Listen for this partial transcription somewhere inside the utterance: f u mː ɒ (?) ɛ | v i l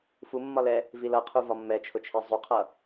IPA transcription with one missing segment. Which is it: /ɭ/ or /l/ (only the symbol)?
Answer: l